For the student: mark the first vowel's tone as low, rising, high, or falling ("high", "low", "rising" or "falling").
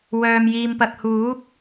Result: low